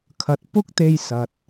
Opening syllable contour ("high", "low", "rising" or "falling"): rising